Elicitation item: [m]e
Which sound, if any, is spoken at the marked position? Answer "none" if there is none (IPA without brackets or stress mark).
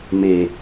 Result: m